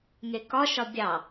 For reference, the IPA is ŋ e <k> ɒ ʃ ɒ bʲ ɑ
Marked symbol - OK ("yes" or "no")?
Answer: yes